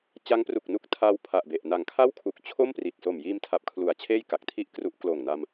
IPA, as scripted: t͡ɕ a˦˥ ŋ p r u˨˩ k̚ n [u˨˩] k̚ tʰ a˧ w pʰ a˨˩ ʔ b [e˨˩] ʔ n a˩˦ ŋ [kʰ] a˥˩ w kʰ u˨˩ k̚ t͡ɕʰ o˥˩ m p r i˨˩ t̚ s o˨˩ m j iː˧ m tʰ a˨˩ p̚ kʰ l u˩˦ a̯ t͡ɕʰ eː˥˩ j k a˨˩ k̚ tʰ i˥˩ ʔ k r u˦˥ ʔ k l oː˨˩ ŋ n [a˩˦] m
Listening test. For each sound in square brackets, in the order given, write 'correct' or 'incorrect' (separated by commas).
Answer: incorrect, correct, correct, incorrect